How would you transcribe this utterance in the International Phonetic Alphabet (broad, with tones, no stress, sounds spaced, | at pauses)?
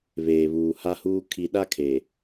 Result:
β eː˨ β uː˨ h a˦ h uː˦ kʰ i˨ ɗ a˦ kʰ e˨